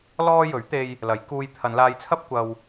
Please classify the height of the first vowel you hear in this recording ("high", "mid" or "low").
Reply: mid